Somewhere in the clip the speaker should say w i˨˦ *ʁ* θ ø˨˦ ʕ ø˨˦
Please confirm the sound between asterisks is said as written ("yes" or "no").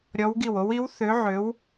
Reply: no